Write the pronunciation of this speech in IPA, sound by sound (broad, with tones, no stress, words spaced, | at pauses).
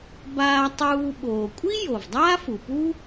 baː˧tˤuː˧ ɓoː˩kʷʼi˥ jo˩vdˤaː˥fu˩pu˥